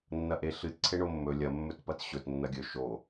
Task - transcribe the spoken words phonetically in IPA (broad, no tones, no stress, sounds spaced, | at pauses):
nː ɐ ʔ e ɬ ɨ t ǀʰ e ɳ o mː ɵ lʲ ɐ mː ɵ t p ɐ t ɕ ɵ t nː ɐ ɡʲ ɵ ʃ o